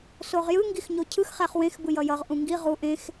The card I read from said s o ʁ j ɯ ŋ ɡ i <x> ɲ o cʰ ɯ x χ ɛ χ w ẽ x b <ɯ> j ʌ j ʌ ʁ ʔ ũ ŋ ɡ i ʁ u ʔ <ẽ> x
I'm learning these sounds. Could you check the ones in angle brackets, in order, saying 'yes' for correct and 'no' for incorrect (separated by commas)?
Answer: yes, yes, yes